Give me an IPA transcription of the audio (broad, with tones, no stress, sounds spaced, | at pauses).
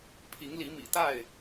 pʰ i˨˦ ŋ l i˨˦ m ḭ˨˩ t̪ a˥˨ ɪ̯